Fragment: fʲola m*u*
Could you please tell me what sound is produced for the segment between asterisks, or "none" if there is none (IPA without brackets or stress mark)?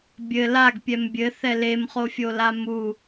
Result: u